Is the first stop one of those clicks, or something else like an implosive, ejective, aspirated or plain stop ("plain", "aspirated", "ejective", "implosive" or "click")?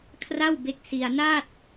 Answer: aspirated